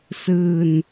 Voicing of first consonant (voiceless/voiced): voiceless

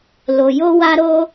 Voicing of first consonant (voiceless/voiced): voiced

